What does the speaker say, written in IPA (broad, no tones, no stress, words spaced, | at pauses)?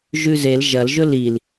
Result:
ʒʉzel ʒɐlʒɵ lil